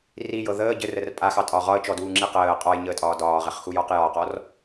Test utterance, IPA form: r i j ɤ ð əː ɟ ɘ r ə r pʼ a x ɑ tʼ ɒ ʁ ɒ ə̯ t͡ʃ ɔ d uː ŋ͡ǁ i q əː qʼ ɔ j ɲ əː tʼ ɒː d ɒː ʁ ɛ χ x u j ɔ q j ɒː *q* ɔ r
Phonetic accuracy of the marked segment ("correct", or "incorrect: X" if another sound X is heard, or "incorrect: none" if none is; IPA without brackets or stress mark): correct